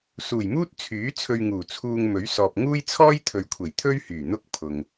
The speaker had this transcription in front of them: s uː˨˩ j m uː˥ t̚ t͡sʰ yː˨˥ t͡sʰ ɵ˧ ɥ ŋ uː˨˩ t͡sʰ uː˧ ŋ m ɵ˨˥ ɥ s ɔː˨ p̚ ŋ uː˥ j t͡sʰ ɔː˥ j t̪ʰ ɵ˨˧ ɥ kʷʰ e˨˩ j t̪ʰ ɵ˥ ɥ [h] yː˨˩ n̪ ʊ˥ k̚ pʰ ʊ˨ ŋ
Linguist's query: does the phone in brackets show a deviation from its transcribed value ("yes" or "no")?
no